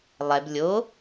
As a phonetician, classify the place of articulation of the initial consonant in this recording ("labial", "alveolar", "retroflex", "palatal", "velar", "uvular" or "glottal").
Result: alveolar